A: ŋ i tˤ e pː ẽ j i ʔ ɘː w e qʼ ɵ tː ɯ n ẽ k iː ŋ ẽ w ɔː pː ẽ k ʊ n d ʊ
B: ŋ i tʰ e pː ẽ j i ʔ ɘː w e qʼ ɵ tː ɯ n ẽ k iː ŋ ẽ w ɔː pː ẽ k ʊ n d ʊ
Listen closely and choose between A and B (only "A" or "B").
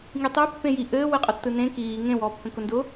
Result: A